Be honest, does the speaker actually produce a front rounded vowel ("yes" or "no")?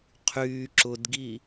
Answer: yes